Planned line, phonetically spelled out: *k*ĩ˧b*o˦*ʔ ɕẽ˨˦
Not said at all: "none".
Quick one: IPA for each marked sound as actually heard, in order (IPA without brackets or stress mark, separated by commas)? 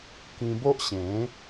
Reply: k, o˦